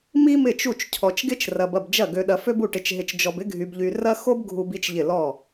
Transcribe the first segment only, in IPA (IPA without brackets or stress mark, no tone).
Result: m